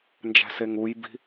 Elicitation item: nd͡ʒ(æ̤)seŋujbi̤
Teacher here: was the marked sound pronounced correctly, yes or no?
yes